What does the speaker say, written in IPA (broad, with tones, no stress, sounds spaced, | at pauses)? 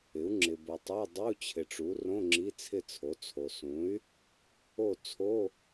ɪ˩˥ u̯ ŋ͡ǁ ɪ˨ b o˨ tˤ a˧˥˧ dˤ u˧˥˧ t͡ɕʰ ɪ˨ ʈ͡ʂ u˩˥ r õ˧˥˧ ŋ͡ǁ i˧˥˧ t͡sʰ ɪ˦˨ t͡sʰ o˩˥ t͡sʰ o˨ s ũ˩˥ y̯ | o˦˨ t͡sʰ o˧˥˧